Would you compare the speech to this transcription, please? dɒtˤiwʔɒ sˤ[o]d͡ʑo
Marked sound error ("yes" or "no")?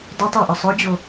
no